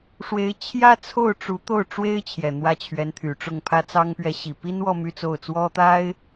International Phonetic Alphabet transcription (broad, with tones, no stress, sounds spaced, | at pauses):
ʂ w e˧˥ ɪ̯ t͡ɕʰ j ä˥ t͡sʰ o˥˩ ʊ̯ ʈ͡ʂ u˧˥ t̪ o˥˩ ʊ̯ ʈ͡ʂ w e˥ ɪ̯ t͡ɕʰ j ɛ˨˩ n̪ w ä˥˩ t͡ɕʰ ɥ ɛ˧˥ n t̪ʰ y˨˩ ʈ͡ʂ ʊ˥˩ ŋ pʰ ä˥ t͡s ɑ˥ ŋ p ɥ ɛ˧˥ ɕ i˨˩ p i˥ n w ɔ˥˧ m y˥˧ t͡s o˥˩ ʊ̯ t͡s w ɔ˥ t̪ a˥ ɪ̯